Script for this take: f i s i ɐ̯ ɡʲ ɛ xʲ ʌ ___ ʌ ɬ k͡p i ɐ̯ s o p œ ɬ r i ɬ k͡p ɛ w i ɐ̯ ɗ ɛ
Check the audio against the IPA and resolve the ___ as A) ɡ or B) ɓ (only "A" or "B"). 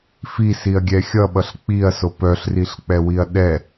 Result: B